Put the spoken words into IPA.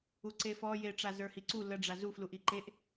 u ǀ e f ɔ j e ʈ͡ʂ a z ə˞ h i ǀ u l ə ɖ͡ʐ a z u f l u ʔ i ǃ e ʔ

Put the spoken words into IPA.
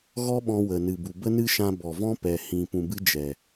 ɣ ɔ˦ ɓ ɔ̃˧ w ə˨ n ɨ˨ b u˨ b ə˦ n ɨ˦ ʃ ã˧ b ɔ˨ v ɔ̃˦ p ɛ˨ h ĩ˨ p ũ˨ b ɨ˧ d͡ʒ ɛ˨

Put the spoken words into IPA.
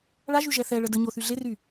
ɭ a ʒ y ʒ ɛ θ ɛ ɭ ə d ə ɲ o θ y ɮ e r y

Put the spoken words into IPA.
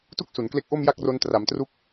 t u˥˩ k̚ s u˩˦ n k l e˦˥ k̚ ʔ o˥˩ m j a˥˩ k̚ r o˦˥ n t r a˩˦ m t r u˦˥ k̚

